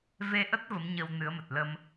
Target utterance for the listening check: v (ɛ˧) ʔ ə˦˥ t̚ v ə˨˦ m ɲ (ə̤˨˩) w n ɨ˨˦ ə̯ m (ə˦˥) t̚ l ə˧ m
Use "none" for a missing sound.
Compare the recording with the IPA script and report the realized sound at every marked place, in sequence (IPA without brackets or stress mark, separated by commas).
e˧, ə˧, ə˨˩